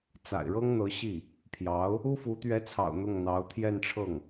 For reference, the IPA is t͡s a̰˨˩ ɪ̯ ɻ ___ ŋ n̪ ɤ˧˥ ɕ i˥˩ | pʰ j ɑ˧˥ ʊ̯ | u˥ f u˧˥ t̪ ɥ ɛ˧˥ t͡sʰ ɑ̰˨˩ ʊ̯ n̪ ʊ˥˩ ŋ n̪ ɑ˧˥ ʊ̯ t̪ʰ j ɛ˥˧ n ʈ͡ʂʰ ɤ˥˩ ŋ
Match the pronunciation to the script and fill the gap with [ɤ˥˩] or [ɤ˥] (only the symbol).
ɤ˥